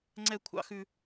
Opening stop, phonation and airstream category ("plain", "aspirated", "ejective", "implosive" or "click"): click